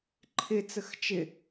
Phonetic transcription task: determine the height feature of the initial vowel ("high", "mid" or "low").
high